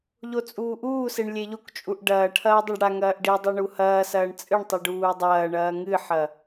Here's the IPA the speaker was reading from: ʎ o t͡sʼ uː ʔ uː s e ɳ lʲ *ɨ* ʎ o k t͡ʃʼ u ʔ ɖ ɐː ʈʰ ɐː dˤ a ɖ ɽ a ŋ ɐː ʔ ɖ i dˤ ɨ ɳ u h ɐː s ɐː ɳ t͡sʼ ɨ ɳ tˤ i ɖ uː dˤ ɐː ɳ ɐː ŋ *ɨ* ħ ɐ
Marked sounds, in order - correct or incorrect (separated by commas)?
incorrect, correct